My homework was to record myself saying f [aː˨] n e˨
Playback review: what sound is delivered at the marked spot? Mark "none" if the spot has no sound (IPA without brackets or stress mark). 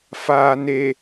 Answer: aː˨